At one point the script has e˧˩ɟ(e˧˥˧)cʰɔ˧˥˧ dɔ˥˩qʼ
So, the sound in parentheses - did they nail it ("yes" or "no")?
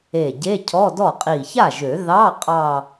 yes